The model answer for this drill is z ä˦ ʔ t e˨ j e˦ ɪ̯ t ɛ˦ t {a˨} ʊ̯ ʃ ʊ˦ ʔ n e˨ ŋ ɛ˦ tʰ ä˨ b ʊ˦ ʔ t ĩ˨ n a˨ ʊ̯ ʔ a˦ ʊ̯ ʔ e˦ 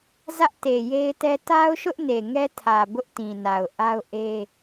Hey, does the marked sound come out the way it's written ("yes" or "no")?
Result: no